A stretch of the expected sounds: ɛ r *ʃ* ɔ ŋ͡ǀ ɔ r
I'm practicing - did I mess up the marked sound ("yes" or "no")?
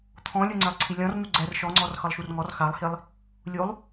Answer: no